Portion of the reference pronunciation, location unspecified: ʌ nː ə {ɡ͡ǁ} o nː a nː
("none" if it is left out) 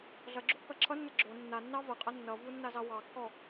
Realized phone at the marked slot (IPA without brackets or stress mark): ɡ͡ǁ